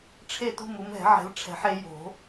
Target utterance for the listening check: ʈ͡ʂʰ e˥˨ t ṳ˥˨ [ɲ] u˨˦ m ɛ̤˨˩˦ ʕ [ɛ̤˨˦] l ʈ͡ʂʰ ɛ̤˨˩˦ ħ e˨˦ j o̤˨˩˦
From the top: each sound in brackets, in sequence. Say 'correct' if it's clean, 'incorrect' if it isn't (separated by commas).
incorrect, correct